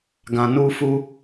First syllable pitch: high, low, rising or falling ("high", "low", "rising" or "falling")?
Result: low